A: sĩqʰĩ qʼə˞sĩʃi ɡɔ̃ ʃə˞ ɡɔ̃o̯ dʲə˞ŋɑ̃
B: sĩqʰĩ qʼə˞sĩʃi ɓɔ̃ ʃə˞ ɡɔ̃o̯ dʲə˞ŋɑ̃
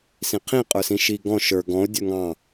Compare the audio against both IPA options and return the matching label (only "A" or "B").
A